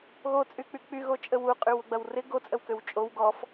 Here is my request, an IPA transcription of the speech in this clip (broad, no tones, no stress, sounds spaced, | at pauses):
ɣ o t͡sʼ y k͡p y k͡p y ɣ o t͡ʃʼ ə w u qʼ y w ʊ ɡ͡b ɐ w r ɪ ɡ o t͡sʼ ə w k ø w t͡ʃʼ o w ɡ ɔ f